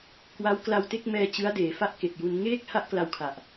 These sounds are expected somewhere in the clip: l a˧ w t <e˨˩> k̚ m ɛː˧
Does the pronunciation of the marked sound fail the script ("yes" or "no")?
yes